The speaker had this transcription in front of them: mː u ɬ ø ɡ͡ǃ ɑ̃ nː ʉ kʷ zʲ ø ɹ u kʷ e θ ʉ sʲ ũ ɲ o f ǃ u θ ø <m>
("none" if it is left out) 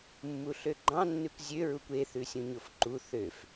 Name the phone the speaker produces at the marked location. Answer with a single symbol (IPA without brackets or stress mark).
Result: f